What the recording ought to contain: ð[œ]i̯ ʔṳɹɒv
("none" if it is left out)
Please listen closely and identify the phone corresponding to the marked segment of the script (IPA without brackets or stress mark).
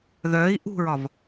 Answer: œ